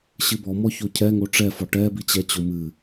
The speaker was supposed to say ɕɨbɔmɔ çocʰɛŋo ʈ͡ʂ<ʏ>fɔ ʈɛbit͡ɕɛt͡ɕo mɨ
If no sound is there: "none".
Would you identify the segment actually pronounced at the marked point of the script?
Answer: ɛ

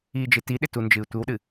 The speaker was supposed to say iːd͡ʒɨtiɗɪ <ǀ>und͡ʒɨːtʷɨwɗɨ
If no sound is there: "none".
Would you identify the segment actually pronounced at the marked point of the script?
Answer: t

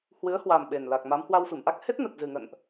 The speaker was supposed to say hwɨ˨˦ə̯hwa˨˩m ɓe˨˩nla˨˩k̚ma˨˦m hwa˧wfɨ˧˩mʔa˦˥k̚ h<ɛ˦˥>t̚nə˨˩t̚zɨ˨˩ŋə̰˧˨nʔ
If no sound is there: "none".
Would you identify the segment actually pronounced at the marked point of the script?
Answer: e˦˥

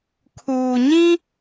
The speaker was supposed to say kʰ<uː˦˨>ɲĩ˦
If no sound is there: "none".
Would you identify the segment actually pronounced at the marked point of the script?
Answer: uː˨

